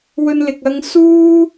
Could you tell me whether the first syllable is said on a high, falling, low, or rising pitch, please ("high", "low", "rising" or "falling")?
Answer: high